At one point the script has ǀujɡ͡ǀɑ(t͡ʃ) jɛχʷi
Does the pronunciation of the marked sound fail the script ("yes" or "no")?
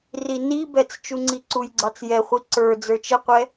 yes